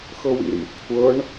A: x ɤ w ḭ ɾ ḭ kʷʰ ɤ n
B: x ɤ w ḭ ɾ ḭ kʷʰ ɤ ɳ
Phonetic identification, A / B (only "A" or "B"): B